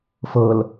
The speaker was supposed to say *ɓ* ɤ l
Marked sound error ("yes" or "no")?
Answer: yes